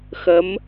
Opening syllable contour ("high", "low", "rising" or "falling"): rising